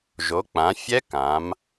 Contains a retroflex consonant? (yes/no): no